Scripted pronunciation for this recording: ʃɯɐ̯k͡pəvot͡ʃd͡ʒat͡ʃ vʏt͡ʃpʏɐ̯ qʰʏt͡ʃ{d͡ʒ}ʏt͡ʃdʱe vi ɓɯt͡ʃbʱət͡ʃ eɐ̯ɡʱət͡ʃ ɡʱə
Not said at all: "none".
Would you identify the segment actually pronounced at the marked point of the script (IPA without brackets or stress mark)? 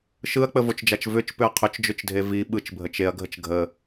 d͡ʒ